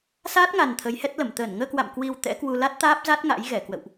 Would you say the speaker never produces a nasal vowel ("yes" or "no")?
yes